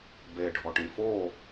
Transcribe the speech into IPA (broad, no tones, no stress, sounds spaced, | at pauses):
b e ɖʱ ɔ ʈ ĩ f o